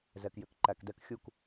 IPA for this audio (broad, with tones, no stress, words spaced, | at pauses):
zɛ˨kjʏ˨k ǃæ˨kdɛ˦k xʲu˦˨k